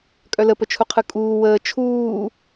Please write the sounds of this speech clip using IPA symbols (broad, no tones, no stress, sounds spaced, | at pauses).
kʼ œ l ə p ə t͡ʃʰ u qʰ ɯ kʼ uː w əː t͡ʃʰ uː